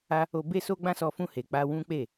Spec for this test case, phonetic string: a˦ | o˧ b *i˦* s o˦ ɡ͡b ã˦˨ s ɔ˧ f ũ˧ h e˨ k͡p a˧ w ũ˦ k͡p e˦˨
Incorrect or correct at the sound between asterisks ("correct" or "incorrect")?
incorrect